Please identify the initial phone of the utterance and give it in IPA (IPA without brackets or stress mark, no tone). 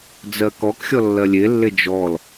d͡z